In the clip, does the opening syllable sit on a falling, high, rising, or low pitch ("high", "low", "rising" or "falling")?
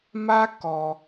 high